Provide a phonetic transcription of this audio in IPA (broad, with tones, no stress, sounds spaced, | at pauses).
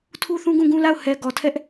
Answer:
tʰ u˦ θ ũ˦ ɡ ũ˦˨ ɡ ũ˦ l a˦˨ ʊ̯ h ɛ˨ ɡ ɔ˨ tʰ ɛ˦ ʔ